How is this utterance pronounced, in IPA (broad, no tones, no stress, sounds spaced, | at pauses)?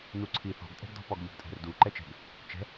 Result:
n u ǀʰ i θ ɔ̤ ɡ tʼ ɛ̤ ɡ d ɔ̤ p ɔ ɡ ʎ o̤ ɡ tʼ ɛ̤ r d u ǃ ɛ t͡ʃ ɛ̤ ɡ | t͡ʃ ɛ̤